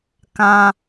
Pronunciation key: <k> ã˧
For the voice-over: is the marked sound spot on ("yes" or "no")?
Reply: yes